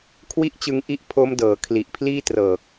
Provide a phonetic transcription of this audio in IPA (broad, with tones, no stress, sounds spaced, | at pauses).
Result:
kʰ w i˥˩ ʔ t͡ɕ ɯ˧ ŋ ʔ i˥˩ ʔ pʰ o˦˥ m d ɤː˩˦ kʰ l i˨˩ ʔ pʰ l iː˥˩ t r ɤː˨˩ k̚